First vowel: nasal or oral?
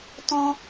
nasal